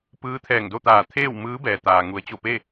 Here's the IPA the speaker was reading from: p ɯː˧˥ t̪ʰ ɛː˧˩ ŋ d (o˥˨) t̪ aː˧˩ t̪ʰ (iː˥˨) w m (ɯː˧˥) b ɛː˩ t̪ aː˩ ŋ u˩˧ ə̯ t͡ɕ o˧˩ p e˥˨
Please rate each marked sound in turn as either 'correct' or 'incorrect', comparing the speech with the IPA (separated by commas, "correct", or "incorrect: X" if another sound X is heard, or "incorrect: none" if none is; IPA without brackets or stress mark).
correct, incorrect: eː˥˨, correct